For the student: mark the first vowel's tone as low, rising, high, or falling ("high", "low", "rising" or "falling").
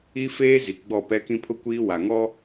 high